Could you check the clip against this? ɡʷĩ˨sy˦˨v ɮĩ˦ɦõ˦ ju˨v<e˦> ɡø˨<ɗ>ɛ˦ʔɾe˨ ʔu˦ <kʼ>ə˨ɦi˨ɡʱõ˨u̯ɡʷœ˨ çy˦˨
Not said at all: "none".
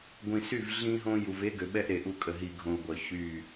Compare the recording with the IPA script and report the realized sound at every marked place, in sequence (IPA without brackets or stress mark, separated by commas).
e˦, ɓ, kʼ